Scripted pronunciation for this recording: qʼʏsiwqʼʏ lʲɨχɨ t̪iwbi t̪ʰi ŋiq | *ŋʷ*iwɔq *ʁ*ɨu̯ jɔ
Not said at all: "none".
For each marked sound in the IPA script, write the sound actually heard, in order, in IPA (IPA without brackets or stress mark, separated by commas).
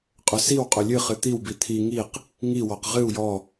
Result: ŋ, ʁ